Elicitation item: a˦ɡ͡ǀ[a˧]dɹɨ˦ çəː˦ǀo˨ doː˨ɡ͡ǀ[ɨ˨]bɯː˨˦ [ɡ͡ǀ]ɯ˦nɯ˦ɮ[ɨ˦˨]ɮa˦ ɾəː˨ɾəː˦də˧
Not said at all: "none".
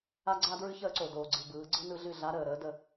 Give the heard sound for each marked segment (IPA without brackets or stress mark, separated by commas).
a˦, ɨ˨, ɡ͡ǀ, ɨ˦˨